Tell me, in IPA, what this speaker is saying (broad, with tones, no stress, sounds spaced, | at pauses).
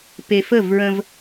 p e˨ f ə˦˨ v ɹ ə̃˦ v